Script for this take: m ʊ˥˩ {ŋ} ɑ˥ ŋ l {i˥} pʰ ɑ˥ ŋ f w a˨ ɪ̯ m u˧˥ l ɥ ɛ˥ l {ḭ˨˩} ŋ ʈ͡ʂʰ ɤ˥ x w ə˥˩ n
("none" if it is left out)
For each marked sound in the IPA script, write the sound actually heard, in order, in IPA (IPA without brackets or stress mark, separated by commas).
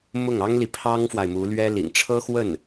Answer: ŋ, i˨, ḭ˨˩